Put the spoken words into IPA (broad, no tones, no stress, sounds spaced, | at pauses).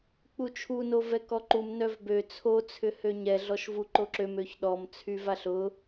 k͡p u t͡ʃʰ u n o v ɛ k ɔ ǃ u m n œ v b ø t͡sʰ o t͡sʰ ʏ h ø ɲ ɛ ɮ ɔ ʃ v u ǃ o ǁ ø m ø ç ɗ ɔ m t͡sʰ y v a ɬ ʊ